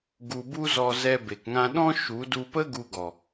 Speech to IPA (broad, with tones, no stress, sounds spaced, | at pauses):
ɡ u˧ b u˦ z ɔ˧ z ɛ˧ b e˨ k ŋ ã˧ ɗ ɔ̃˦ ʃ u˨˦ d u˧ p ə˦ ɡ u˧ ɡ ɔ˨